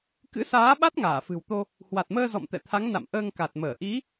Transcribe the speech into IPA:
k ɨ̰˧˥ s aː˨˦ ɓ a˦˥ t̚ ŋ aː˧˩ f ɨ̤˨˩ w t̪ o˧ | h w a˨˩ t̚ m əː˧ z ɔ̰˧˨ m t̪ ɛ̰˧˨ t̪ʰ a˨˦ ŋ n a̰˧˨ m ʔ əː˧ ŋ k a˨˩ t̚ m əː˧˩ ʔ i˨˦

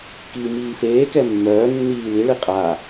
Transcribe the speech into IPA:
k iː m iː f eː k ɛ mː œː nː iː l i ɭ i qʼ a

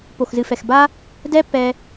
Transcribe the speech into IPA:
p o˨ x z ɨ˨ f ɛ˨ x b a˦ | d ɛ˦ p ɛ˧

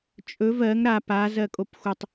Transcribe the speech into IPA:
t͡ʃʼ ɵ v ɜ ŋ ɾ a p a z ɜ kʼ o p xʷ ə tˤ

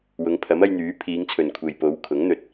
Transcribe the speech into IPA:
w ʊ˨˧ ŋ pʰ ɐ˨˥ m ɐ˧ j n̪ yː˨˥ pʰ iː˨˧ ŋ t͡sʰ ɵ˨ n kʷʰ e˨ j p o˨˧ w kʰ ʊ˨˥ ŋ n̪ ɵ˨ t̚

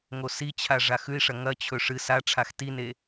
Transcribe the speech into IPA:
ŋ o s i t͡ɕʰ a ʐ a x ʉ i̯ ʂ ɐ ŋ ɐ t͡ɕʰ ɵ ʂ ɨ s a ʈ͡ʂʰ a x t i n e

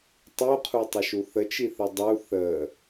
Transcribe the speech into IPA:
tˤ u qʰ u tˤ ə ʃ u θ ə t͡ʃ i θ ə dˤ u θ ə

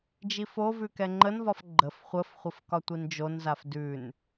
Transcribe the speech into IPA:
d͡ʒ i f o v ʉ k ɛ ŋ͡ǃ ə n v ɒ f ɡ͡ǃ ə f χʷ ə f χʷ ə f k ɒ tʷ i n d͡ʒ o n z a f d ʉ n

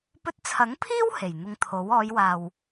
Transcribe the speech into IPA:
p ɵ˧ t̚ t͡sʰ ɐ˨˥ ŋ pʰ iː˥ w h e˨˩ j n̪ ʊ˧ ŋ t̪ʰ o˨˥ w ɔː˨˧ j w aː˨ w

